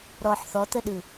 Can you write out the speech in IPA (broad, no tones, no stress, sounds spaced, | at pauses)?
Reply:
ɾ ɔ ħ θ ɔ t̪ ə ɗ ɯ